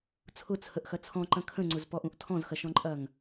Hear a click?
yes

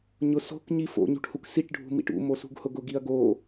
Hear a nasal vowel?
no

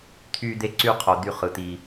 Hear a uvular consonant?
yes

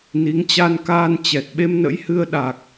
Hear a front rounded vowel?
no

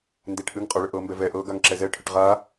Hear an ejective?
yes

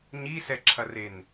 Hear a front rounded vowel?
no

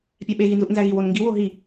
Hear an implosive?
yes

